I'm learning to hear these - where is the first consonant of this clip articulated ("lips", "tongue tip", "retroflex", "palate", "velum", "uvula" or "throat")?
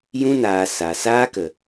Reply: palate